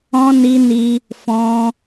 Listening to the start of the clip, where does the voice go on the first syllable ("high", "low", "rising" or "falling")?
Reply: high